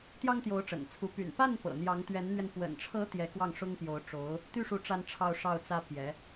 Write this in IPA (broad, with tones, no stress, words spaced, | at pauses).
t̪jɑ˥ŋt̪jo˧˥ʊ̯ʈ͡ʂə̰˨˩nt͡sʰu˧˥ py̰˨˩n pa˥˩n pɤ̰˨˩n̪jɑ˧˥ŋ t̪ɥɛ˧˥nn̪ɥɛ˧n pwə̰˨˩nʈ͡ʂʰɤ˧˥ t̪jɛ˧˥kwɑ˥˩ŋ ʂʊ˥ŋpjo˧˥ʊ̯ ʈ͡ʂo˧˥ʊ̯ | t̪y˥˩ʂu˧˥ ʈ͡ʂa˥nʈ͡ʂʰɑ˥˧ʊ̯ʂɑ˥˩ʊ̯ t͡sä˥pjɛ˧˥